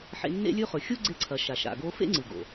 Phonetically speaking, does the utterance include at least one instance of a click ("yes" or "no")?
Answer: yes